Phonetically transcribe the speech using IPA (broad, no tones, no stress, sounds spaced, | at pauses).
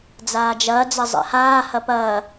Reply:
d͡z aː d͡ʒ ɐː d͡z ɐ zˤ ɛ̰ h aː h ɐ p ɐː